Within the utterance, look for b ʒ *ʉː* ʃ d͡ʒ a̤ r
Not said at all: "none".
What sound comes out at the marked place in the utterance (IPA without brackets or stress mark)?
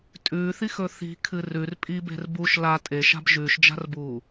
ʉː